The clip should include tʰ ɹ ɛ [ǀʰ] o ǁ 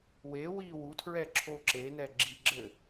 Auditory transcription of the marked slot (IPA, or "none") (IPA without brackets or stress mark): ǁʰ